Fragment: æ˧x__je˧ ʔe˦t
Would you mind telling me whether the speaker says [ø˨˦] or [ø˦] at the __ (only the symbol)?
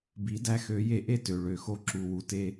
ø˨˦